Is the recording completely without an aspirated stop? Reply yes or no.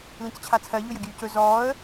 no